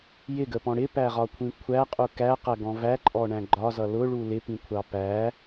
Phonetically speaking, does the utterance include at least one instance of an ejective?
yes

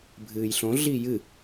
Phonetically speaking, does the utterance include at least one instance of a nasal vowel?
yes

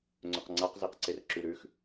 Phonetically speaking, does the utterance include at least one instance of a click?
yes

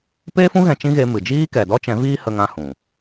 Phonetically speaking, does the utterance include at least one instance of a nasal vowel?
yes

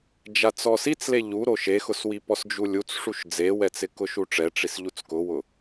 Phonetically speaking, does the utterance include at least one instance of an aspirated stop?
no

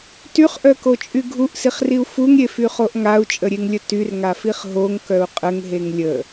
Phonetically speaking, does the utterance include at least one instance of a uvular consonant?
yes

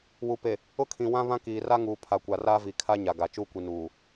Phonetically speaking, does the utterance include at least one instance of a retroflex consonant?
no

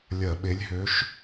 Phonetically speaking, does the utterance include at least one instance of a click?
no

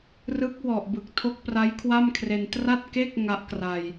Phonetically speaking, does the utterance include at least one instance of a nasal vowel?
no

